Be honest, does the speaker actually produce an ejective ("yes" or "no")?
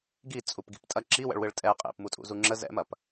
yes